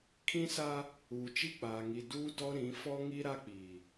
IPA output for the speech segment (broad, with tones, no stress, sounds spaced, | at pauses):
kʰ ĩ˦ s a˦ | uː˨ t͡ʃ i˦ k͡p aː˨ ŋ i˨ d uː˦ d ɔ˦ ɾ ĩ˨˦ f ɔ˦ ŋ i˦ ɾ a˦ k͡p iː˨